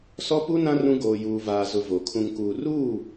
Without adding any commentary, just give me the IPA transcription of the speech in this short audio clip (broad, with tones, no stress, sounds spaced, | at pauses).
s ɔ˦ p u˦ n ã˦ r ũ˦ ɡ oː˨ j uː˨ v aː˨ z ʊ˨ v o˨ kʰ ũ˨ ŋ k uː˨ r uː˦˨